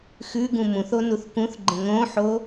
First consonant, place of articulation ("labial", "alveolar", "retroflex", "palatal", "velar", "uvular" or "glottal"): velar